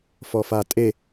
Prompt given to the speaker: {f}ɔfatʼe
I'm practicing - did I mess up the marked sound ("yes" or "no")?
no